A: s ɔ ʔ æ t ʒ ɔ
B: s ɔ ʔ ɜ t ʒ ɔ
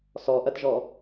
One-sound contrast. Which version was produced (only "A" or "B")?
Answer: B